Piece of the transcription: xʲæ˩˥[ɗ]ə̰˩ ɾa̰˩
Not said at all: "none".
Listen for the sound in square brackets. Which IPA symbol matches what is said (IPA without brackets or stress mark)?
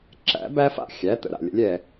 t̪